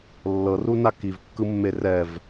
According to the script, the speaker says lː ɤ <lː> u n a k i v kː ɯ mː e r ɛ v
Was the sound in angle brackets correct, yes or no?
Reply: no